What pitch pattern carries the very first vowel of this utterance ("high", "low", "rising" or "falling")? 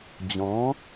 rising